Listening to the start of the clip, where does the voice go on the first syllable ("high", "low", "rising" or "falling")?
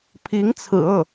rising